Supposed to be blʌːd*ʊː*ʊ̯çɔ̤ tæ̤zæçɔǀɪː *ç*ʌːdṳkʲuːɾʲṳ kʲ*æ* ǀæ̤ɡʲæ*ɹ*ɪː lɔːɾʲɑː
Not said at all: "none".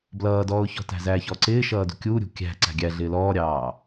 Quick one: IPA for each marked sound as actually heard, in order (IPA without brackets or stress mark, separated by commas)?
ɔː, ʃ, æ̤, ɮ